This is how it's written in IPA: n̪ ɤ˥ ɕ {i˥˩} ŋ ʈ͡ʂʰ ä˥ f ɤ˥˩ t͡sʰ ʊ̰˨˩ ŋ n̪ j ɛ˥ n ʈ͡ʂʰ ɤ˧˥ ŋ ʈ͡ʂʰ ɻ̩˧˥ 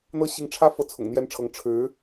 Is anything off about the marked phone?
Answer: yes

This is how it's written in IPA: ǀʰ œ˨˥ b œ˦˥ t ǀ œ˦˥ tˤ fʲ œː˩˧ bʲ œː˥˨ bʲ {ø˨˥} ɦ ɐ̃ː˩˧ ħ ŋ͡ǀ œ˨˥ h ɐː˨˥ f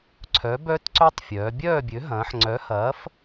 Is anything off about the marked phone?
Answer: no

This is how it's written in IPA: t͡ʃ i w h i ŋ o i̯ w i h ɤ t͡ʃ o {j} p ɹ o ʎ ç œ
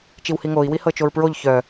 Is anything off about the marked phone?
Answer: yes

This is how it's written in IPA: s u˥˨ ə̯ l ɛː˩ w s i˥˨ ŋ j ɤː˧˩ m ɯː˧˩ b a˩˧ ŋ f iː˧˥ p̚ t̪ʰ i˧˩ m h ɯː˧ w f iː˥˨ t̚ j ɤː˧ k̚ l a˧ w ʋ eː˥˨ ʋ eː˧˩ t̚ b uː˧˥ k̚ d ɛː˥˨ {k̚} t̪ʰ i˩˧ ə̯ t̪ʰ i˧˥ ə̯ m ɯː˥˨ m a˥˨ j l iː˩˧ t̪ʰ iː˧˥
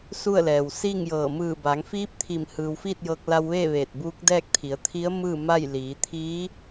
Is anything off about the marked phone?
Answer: no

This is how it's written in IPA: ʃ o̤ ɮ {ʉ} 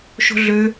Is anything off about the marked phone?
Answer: yes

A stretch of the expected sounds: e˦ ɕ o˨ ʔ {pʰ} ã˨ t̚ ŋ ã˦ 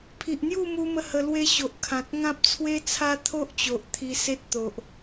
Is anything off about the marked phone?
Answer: yes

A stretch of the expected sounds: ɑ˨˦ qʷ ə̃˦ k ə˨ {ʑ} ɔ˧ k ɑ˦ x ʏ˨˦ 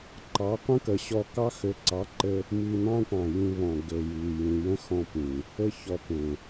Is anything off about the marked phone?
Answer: yes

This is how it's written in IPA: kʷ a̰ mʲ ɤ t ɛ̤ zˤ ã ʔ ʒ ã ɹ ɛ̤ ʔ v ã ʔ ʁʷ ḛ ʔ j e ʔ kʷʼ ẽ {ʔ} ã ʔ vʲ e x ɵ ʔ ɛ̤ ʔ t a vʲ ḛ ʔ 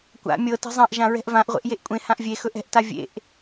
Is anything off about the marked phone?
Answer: yes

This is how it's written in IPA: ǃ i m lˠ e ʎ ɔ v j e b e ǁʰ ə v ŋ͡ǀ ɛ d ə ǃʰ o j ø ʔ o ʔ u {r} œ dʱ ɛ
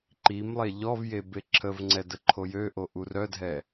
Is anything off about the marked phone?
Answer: no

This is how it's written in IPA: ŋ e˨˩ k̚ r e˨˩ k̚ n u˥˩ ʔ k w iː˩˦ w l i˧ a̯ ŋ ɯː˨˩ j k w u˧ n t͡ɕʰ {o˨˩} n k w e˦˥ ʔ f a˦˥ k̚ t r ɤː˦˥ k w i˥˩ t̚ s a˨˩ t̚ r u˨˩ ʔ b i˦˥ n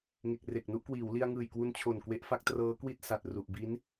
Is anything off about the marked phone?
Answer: no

